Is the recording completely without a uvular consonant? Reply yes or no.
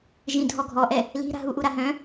yes